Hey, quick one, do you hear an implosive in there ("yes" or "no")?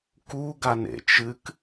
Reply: no